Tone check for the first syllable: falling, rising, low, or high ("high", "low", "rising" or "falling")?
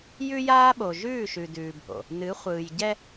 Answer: high